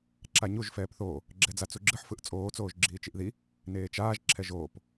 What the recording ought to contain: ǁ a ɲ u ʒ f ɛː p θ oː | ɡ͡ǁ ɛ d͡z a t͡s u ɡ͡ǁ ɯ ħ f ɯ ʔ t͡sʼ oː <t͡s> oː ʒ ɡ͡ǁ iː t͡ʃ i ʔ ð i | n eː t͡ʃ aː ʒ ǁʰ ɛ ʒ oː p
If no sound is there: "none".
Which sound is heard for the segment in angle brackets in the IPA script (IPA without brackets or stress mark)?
t͡s